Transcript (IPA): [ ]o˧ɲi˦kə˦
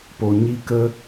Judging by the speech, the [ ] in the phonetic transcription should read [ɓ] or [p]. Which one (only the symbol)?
p